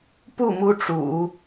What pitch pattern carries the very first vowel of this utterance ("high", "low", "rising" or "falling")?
falling